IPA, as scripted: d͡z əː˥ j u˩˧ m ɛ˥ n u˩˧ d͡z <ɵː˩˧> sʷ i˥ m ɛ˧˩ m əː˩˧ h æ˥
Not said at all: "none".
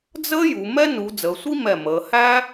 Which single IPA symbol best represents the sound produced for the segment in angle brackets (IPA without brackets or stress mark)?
əː˩˧